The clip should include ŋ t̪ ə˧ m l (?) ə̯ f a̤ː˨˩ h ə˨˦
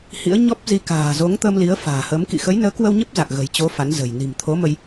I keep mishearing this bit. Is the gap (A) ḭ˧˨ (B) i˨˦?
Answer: B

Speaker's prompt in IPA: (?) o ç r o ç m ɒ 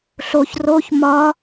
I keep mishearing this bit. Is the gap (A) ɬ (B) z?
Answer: A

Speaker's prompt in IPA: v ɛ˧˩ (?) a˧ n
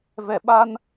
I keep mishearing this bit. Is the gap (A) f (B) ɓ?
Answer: B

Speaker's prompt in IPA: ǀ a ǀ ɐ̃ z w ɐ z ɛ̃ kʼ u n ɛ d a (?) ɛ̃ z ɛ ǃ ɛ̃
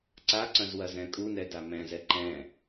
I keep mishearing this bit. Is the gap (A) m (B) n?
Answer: A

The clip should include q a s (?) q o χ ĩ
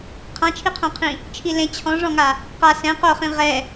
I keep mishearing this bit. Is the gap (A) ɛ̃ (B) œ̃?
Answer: A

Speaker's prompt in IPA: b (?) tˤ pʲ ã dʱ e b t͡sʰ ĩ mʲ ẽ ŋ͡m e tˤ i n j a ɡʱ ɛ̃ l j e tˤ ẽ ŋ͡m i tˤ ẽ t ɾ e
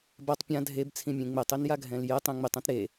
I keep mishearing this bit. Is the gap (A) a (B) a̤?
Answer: A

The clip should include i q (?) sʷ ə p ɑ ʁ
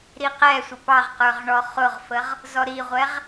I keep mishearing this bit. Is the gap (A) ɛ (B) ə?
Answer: A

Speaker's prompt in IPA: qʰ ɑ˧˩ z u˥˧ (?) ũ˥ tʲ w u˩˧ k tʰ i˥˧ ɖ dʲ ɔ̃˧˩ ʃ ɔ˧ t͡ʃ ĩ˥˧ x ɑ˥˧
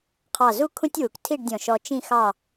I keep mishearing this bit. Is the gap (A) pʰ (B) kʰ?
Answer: B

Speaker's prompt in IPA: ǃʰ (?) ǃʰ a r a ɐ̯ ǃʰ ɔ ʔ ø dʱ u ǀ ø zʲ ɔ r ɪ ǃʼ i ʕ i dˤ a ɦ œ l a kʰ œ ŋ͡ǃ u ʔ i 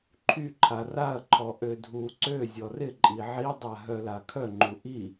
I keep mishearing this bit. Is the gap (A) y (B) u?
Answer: A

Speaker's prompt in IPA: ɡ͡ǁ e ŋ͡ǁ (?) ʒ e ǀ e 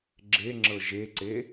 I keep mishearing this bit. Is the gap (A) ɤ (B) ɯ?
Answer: A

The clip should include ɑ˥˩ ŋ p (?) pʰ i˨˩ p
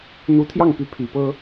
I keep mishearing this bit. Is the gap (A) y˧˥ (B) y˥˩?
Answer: A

